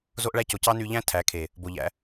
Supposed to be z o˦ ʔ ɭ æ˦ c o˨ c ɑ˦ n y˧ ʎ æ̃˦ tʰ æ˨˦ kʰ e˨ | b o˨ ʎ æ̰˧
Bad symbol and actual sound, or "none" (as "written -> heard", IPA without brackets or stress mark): none